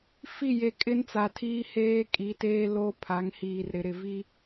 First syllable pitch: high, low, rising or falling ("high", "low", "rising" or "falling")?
falling